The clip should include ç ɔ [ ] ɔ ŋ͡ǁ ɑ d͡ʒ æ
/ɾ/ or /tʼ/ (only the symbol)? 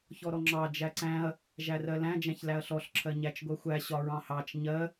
ɾ